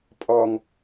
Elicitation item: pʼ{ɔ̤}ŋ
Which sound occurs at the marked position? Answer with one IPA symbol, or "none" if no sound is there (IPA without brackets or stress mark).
ɔ